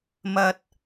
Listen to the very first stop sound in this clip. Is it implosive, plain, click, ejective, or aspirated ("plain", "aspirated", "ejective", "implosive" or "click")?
plain